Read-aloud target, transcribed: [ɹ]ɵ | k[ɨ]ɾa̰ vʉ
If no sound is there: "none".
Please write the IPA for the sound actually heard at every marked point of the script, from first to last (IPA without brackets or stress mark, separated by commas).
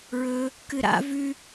ɹ, ɨ